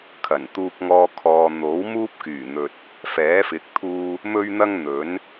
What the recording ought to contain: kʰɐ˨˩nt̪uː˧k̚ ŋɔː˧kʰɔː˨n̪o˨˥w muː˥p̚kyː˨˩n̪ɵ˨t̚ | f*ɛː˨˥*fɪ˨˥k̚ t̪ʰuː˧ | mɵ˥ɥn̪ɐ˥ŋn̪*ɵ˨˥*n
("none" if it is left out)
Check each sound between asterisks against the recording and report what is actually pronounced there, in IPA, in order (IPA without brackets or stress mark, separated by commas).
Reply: ɛː˨˥, ɵ˨˥